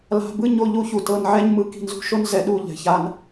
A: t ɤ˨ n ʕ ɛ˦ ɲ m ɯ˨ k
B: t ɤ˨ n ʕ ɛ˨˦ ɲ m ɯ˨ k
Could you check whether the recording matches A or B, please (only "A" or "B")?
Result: A